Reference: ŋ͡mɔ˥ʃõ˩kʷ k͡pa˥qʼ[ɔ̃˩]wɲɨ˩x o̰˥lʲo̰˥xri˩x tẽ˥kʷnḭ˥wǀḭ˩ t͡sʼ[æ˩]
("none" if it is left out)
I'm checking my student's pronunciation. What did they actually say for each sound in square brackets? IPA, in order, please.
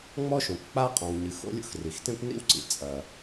ɔ̃˩, ɐ˩

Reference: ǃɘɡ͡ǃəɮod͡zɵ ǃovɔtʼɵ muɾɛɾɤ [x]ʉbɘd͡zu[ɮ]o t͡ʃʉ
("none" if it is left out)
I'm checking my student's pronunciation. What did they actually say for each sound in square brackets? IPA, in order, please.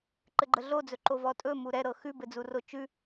x, r

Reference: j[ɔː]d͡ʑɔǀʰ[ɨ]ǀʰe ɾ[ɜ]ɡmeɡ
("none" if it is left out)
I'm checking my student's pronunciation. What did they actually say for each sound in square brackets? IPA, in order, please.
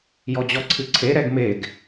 ɔ, ɨ, ɛ

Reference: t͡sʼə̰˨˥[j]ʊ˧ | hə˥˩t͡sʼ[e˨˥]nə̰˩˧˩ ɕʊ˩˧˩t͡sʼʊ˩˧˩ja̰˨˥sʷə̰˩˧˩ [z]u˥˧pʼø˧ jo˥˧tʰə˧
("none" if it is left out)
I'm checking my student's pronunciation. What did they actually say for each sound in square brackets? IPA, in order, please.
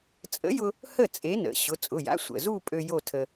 j, e˨˥, z

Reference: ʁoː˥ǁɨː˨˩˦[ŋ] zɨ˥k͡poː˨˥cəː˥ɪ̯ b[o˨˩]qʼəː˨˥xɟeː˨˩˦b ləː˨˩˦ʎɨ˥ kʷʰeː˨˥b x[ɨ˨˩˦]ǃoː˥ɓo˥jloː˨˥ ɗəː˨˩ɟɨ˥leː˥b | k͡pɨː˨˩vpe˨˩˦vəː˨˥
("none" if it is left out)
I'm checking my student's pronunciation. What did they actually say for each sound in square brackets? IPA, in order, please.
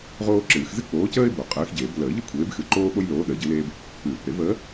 x, o˨˩, ɨ˨˩

